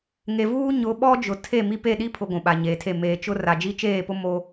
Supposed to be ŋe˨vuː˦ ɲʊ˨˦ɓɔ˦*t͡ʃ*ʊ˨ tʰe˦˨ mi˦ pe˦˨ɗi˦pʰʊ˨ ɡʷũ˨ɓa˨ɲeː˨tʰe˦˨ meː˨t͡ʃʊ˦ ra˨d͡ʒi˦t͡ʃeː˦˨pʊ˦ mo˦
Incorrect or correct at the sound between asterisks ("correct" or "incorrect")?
incorrect